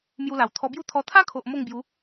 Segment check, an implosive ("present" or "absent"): absent